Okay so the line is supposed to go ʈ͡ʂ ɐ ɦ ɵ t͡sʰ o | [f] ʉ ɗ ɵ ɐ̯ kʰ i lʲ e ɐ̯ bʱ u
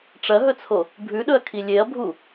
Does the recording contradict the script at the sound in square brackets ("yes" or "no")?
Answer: yes